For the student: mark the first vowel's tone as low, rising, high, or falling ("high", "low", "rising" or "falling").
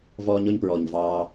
high